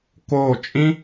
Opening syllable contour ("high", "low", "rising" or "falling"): falling